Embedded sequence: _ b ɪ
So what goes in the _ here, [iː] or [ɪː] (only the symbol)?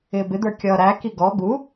ɪː